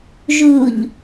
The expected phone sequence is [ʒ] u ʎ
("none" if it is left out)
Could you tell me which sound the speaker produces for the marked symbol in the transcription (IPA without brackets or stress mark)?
ʒ